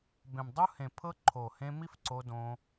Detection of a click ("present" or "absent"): present